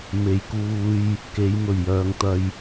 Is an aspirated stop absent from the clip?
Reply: yes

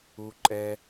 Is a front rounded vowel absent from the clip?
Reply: yes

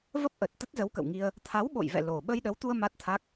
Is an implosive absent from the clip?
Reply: no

